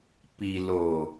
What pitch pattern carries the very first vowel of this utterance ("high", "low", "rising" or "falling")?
low